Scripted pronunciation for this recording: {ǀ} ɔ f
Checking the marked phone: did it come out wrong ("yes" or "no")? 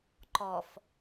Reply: yes